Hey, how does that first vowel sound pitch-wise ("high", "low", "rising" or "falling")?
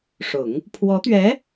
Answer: low